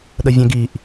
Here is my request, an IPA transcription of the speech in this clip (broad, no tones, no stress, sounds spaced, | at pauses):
ɗ ə vʲ ɛ̃ ɡ i ʔ